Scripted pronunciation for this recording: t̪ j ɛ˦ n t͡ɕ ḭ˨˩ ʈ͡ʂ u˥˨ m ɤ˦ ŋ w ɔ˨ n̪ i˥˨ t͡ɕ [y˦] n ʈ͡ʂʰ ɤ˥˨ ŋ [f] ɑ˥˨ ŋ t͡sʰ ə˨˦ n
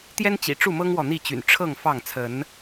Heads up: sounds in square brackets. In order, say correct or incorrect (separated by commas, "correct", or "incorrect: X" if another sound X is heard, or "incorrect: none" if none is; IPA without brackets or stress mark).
incorrect: y̰˨˩, correct